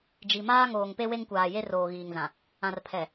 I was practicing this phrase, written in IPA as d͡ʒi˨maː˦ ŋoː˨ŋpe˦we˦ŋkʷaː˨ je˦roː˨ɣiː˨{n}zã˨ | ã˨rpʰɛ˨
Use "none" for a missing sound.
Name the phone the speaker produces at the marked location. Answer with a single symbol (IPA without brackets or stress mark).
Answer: ŋ